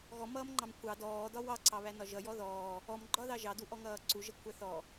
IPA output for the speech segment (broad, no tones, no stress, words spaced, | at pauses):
ɣɔmʌːmŋ͡ǃɑm kʷʰɑ dɔːdɒ wɑǀɑβænɒ ʒʌjɔ ðɔː | ɔmɡ͡ǃɒðɑ ʒɑduʔɔŋʌː ǀuʒʌkʷʰæ θɔ